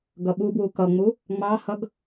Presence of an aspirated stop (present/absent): absent